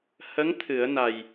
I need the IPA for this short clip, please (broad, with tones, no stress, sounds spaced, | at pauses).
h ə˧˥ ŋ t̪ʰ ɨ˨˩˦ ə̯ n a˨˩ j